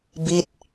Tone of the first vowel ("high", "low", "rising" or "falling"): falling